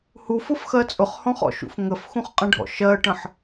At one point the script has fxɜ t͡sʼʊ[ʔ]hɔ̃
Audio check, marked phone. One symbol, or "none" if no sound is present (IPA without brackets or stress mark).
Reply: χ